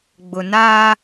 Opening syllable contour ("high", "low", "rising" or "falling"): low